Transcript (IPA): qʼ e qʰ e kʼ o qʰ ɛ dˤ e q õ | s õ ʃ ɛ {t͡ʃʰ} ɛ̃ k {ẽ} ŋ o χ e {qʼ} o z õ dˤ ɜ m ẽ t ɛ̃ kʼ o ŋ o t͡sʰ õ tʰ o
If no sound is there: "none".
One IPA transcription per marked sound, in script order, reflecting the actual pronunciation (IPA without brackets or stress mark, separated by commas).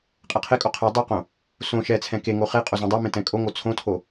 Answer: t͡sʰ, e, qʼ